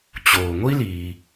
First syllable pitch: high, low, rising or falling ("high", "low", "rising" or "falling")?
low